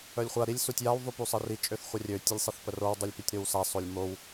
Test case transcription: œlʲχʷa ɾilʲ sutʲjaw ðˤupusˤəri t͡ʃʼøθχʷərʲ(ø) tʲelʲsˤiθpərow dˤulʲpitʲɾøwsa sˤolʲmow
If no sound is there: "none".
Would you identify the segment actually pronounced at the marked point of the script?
ø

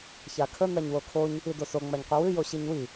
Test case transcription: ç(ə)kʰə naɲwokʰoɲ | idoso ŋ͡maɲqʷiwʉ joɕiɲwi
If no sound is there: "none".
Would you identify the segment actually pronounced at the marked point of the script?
a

